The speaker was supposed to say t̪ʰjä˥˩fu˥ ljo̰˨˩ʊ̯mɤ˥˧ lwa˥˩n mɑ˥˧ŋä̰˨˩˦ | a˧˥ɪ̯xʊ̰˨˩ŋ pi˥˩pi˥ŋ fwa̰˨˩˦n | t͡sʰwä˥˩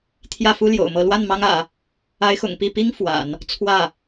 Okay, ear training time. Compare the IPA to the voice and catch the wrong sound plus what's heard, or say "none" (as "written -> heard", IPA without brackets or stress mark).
ɑ˥˧ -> ɑ˥